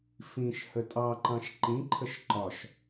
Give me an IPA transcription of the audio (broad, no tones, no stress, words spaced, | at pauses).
fĩʃ hətʼɑǃɑ̃ʃ ǃĩǃʰəʃ ǃɒʃ